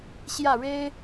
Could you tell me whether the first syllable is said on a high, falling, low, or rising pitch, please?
falling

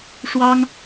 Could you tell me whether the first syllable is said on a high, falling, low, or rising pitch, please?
high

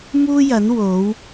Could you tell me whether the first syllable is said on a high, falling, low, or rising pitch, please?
high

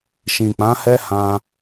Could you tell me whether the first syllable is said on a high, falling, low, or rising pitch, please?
low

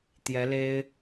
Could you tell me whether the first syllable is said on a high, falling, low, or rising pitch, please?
rising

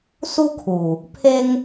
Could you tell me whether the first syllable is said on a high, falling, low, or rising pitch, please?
high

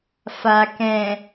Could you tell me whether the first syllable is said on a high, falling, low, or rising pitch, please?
low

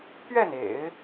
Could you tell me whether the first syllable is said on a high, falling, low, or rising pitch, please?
falling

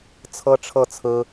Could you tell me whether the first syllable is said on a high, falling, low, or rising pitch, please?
high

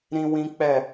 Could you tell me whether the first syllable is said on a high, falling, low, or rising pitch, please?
high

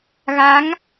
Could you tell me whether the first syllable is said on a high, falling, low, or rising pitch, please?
rising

